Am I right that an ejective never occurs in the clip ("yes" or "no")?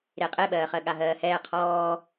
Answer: no